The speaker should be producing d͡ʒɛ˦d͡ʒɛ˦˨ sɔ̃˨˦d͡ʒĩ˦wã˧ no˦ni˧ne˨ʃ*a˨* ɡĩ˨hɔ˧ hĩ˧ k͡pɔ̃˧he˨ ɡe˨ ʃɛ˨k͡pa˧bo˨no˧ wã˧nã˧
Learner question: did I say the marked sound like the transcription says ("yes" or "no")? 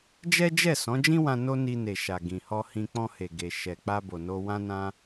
yes